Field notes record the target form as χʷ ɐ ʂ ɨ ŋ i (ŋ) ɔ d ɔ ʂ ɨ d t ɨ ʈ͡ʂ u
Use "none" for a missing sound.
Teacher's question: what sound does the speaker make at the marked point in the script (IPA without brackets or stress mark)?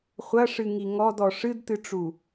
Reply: ŋ